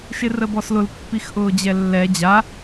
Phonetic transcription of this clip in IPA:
ʃ ɪ r ə b ɔ s l ʊ l pː i x ʔ ʊː d͡ʑ ɛ lː ɛ d͡ʑ a

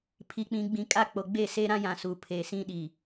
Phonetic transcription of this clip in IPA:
pʰ i˨ k͡p ĩ˨ ɡ͡b ĩ˨ kʼ aː˦ k͡p o˨ ɡ͡b eː˦˨ s eː˦ ɾ ã˦ j ã˨ s uː˨ pʰ eː˨ s ĩ˦ ɗ i˨

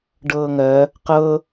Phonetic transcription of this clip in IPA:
ɖ ɤː ŋ ɜ | q ɤ

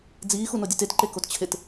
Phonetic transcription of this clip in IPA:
d͡z iː x u n o dʲ u t e t ǃ e k o t t͡ɕʰ e t

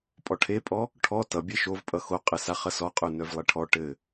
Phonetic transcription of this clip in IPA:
pʼ ɔ ʈʰ e pʼ ɔ | ʈʰ ɔ t ʌ bʲ e ʃ o v pʼ ʌ x o qʼ ɘ s a χ ʌ s ɔ qʼ ø n œ v lˠ e ʈʰ ɔ ʈ ɘ

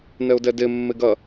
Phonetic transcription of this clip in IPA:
n ɛ ʊ̯ d ɛ d e mː e ɡ ɐ

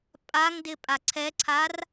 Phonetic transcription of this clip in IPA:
pʼ a ŋ d ɪ pʼ a ǀʰ ɛ ǀʰ a r

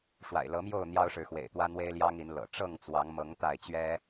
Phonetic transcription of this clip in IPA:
ʂ w a̰˨˩ ɪ̯ l ɤ˨˦ m j o˥˨ ʊ̯ n̪ j ɑ˦ ʊ̯ ʂ ɻ̩˨ x w ḛ˨˩ ɪ̯ t̪ w ä˦ n̪ w e˦ ɪ̯ l j ɑ˦ ŋ i˨˦ n l ɤ̰˨˩ ʈ͡ʂ ɤ˥˨ ŋ t͡s w ɑ˨˦ ŋ m ɤ˨˦ ŋ t̪ a˥˨ ɪ̯ t͡ɕ ɥ ɛ˦

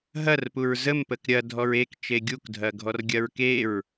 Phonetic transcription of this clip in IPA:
ɦ ɐ r p u ɹ z ə m p ə k ɾʲ ɐ dʱ ɔ ɹ e k t͡ʃ e ɡʲ u k dʱ ɐ ɡʱ ɔ r ɡʲ ɐ ɹ k e ɹ

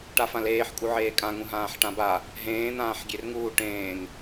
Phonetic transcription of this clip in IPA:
ʈ a f ã l eː ħ kʼ u ʕ eː kʼ ã ŋ ũ ɦ ãː ħ ʈ ã b a | ɦ ẽː n̪ ãː ħ ɡʲ e r ŋ uː ʈ ẽː ŋ

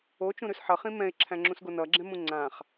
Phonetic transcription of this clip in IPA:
o t͡ʃ ũ ɾ ʉ s ħ ʌ χ ĩ m ɛ̃ ɪ̯ ǁʰ æ̃ ŋ͡ǁ ũ s ɡ o n ʌ ɡ͡ǁ ɛ̃ m ũ ŋ͡ǀ ã χ

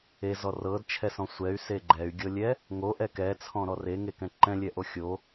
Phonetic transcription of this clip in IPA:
e z ɔ r ɤ d t͡ʃʰ ɛ s ɔ̃ sʷ ɛ y̯ s e ɡ͡ǃ ɛ y̯ ɡʲ ɤ lʲ ɛ | ŋ o ʔ ɛ k ɛ t͡sʰ ɔ̃ ɾ ɔ r e ŋ e k ɛ̃ ǃ ɛ̃ lʲ ɛ ʔ o xʲ o

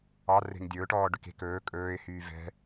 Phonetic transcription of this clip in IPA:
ɑ r e̤ ŋ dʲ ɵ ʊ̯ ʈ ɔː ɖ ʉ k e̤ k ɵː kʼ ɵː ɪ̯ h yː v ɛ̤

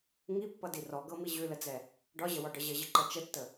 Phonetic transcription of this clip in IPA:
ŋ i pː ʌ d i r ɔ ɡ ɤ m i ʑ ʉ l ə d͡z ɛ | ɖ ɒ ʑ ə w ɒ ɖ ʌ ʑ ə ʑ ə ǃ ʌ t͡ʃ ə tː ə

